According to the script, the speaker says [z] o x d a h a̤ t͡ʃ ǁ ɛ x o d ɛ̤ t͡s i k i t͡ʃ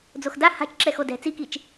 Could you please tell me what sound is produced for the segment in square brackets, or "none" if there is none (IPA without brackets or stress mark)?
d͡z